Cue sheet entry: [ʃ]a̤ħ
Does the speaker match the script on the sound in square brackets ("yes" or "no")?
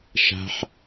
yes